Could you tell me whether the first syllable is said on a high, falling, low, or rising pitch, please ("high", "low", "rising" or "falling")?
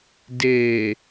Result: low